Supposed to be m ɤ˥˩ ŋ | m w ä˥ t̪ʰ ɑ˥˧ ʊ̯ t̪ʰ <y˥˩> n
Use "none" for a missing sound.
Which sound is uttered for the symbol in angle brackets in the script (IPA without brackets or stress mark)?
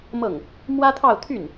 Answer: y˥˩